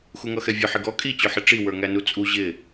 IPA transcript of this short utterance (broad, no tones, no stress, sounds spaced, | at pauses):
x u ŋ ʌ x ɛ vʲ ʊ ħ ɪ ɡ ɔ kʼ i t͡ɕ ʊ ħ ɪ ʈ͡ʂ i w ə˞ ŋ æ n u t͡sʼ u ʑ ɪ